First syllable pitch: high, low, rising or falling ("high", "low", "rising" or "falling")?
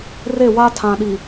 falling